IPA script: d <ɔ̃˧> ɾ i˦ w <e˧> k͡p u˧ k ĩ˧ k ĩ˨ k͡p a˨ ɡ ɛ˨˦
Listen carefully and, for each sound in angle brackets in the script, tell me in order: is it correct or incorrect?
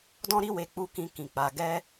incorrect: ɔ̃˦, correct

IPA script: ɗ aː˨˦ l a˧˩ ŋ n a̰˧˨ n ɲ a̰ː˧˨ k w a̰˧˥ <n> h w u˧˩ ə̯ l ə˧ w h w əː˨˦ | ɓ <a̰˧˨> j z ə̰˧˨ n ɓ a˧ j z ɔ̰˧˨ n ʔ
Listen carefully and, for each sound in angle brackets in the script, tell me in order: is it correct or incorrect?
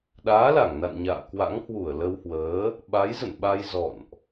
incorrect: ŋ, incorrect: a˨˦

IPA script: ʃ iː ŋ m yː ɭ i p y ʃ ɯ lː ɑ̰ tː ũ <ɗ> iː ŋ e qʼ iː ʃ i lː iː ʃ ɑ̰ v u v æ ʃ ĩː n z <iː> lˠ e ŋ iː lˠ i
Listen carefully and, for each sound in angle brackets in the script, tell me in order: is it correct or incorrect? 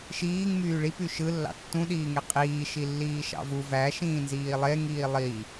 correct, correct

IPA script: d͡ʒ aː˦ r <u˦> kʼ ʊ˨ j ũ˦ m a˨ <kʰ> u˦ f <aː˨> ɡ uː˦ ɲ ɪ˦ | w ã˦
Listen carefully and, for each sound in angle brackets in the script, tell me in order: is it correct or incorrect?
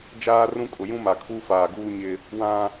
incorrect: ũ˦, correct, correct

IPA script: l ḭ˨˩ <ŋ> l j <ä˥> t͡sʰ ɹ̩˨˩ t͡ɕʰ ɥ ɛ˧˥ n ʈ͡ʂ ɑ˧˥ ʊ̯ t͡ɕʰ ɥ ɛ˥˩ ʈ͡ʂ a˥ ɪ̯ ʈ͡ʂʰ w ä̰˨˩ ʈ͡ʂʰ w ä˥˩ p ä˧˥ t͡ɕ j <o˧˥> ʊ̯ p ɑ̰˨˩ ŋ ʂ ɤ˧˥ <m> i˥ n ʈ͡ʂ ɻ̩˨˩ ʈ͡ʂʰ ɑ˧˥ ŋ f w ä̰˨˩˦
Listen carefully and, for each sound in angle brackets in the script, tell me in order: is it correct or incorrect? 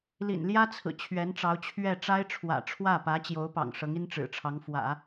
incorrect: n, correct, correct, incorrect: ŋ

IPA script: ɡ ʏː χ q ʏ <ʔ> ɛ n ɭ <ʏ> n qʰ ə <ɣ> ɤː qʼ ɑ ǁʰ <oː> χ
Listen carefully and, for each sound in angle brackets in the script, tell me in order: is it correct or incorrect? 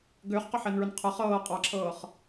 incorrect: ħ, correct, incorrect: χ, incorrect: ɤː

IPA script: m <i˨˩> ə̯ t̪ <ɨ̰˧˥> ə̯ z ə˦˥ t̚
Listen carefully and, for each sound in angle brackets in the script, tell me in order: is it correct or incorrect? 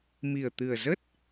correct, incorrect: ɨ˨˩

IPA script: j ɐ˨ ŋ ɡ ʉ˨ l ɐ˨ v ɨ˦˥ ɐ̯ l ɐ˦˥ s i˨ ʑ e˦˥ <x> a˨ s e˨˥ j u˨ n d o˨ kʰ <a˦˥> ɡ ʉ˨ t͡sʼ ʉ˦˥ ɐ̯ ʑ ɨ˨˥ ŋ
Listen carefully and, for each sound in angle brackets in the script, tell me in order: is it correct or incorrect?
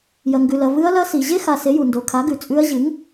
correct, incorrect: a˨˥

